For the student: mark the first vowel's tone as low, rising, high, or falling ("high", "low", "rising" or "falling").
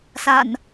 low